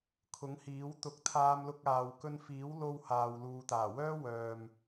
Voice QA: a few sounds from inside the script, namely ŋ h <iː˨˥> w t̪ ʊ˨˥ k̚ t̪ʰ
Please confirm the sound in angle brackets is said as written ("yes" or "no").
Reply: yes